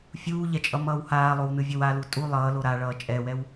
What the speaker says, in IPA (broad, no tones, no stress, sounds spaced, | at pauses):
fʲ uː ʎ ɛ t͡ʃʼ ʌ m ʌː w h aː lˠ o w n ɯ vʲ ʌ w a l u tʼ u lˠ ʌː l o ɾ a ɭ ʌː t͡ʃʼ ɛ w ɛ w